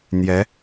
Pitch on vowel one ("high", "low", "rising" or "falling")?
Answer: rising